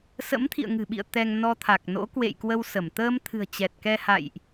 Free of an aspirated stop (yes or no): no